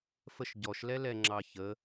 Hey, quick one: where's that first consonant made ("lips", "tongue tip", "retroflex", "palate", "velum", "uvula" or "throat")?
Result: lips